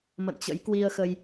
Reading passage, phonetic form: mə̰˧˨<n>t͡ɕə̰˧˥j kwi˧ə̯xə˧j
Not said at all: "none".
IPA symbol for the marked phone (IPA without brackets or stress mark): n